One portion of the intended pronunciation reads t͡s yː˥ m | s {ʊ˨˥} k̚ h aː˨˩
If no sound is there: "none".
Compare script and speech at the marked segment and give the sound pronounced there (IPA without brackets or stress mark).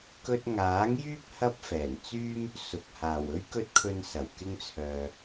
ʊ˨